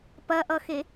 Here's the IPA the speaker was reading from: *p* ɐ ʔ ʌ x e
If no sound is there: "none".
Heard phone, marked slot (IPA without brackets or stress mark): p